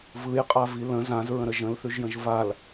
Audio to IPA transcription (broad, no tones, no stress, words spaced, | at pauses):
vɯjqʼavi lə̃ zãzɹə̃ɾə ʒə̃lθʉʒjə̃ʒ val